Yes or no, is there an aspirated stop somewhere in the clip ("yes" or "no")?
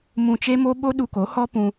no